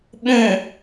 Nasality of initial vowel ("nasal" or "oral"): nasal